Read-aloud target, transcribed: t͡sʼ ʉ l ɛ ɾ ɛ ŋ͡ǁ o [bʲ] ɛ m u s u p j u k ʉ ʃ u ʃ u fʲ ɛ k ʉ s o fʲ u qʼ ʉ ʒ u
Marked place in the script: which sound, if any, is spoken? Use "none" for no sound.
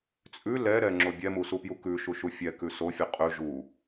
bʲ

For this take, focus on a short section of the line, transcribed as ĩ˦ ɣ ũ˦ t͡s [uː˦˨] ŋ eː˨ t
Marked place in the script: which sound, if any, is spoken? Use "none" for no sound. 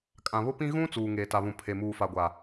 uː˨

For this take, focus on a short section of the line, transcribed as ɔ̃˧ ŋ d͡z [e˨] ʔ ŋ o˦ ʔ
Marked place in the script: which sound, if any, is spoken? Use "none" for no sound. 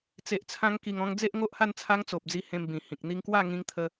e˦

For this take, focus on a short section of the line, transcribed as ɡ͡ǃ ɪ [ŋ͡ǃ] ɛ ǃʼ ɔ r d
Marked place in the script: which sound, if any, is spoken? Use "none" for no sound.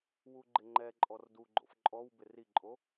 ŋ͡ǃ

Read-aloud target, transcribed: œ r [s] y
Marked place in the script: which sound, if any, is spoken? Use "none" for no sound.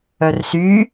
s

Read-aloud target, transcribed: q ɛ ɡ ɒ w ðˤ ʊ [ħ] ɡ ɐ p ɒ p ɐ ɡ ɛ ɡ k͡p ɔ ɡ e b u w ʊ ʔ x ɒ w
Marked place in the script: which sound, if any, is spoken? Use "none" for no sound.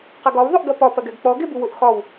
ʔ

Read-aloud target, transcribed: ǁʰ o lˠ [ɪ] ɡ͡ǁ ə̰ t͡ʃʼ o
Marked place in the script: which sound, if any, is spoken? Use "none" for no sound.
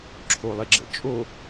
ɪ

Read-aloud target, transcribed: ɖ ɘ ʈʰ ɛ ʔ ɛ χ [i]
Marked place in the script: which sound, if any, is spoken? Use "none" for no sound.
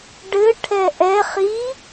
i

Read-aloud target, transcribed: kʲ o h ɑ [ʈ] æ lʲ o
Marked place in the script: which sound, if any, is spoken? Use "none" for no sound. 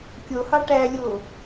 ʈ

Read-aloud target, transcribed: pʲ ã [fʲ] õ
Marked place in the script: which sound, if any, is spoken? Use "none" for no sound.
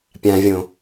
vʲ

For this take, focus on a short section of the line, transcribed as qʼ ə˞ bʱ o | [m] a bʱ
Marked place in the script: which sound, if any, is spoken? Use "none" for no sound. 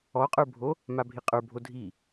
m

